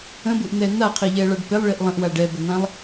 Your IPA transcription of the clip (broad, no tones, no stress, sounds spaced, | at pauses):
ə̃ b u ʔ n̪ ɛː n̪ a qʰ i ʎ ɛː ɭ a ɖ p ɪ lˠ ɭ i ʔ lˠ ə̃ ʔ w a ɖ ɛ b ə n̪ ã lˠ